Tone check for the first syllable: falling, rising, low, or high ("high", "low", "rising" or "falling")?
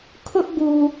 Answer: high